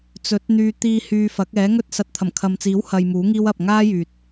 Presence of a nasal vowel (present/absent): absent